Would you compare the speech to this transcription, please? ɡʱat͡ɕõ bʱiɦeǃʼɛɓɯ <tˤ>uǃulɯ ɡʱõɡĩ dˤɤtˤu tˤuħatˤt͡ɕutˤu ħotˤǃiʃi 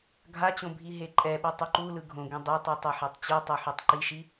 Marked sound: correct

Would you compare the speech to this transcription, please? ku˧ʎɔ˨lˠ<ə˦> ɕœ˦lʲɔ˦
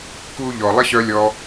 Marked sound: correct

